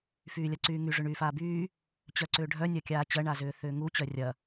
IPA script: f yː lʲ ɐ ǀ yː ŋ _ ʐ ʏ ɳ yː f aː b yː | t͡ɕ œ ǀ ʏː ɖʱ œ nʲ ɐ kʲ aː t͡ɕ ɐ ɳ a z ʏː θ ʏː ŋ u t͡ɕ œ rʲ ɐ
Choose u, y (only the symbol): y